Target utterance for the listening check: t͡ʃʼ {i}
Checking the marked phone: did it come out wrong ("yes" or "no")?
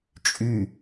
yes